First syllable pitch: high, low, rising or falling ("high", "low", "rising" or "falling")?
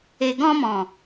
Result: low